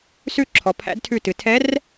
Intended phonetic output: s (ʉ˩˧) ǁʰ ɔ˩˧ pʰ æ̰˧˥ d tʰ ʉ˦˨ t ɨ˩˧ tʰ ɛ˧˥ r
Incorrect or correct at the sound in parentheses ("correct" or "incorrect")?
incorrect